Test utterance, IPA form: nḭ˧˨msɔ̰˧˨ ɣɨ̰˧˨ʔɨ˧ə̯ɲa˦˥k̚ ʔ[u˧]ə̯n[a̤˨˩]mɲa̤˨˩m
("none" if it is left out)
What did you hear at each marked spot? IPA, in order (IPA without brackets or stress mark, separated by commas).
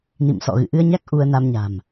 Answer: u˧, a˧